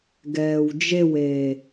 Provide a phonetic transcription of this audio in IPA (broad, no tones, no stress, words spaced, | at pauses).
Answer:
ɡɛːwd͡ʒeweː